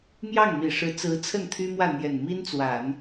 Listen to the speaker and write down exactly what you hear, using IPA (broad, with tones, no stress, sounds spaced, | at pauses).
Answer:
m j ɑ˥˩ ŋ m i˨˩ ʂ ɻ̩˧˥ t͡s ɹ̩˧˥ t͡sʰ ə˥˩ n t̪ʰ y˥ m w ä˥˩ n̪ j ɛ˨˩ n m i˥ n t͡s w a˨˩˦ n